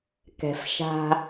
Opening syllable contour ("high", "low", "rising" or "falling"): low